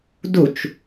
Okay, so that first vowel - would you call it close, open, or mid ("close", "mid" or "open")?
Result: close